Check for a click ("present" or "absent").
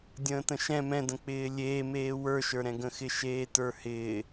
absent